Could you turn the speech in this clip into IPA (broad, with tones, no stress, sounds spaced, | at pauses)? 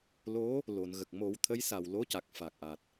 l o˧˥ | l o˨˩˨ n ɣ ə˨˩ k̚ m o˨˩˦ w t̪ʰ ə˧˥ j s a˨˩ w l o˧˥ c a˨˩ k̚ f a˨˩ k̚ ʔ a˨˩ t̚